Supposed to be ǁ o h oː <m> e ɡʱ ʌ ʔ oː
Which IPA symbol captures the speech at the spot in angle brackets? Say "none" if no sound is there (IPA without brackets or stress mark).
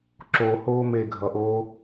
m